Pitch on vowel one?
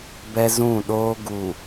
high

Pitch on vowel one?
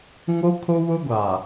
high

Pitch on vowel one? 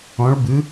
rising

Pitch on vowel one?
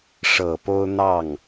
low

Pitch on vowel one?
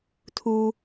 low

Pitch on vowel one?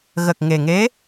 low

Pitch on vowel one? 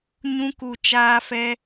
high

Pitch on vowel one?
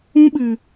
high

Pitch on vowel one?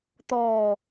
low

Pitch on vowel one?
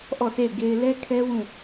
falling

